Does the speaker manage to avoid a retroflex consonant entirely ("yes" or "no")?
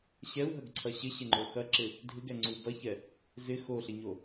yes